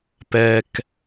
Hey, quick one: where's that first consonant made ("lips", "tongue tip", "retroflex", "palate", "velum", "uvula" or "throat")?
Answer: lips